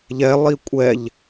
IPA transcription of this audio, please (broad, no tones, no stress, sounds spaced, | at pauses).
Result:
ʎ ɛ lˠ i kʷʼ ɛ ʎ